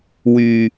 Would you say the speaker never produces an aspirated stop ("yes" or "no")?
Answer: yes